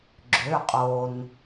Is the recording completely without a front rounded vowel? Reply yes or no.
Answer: no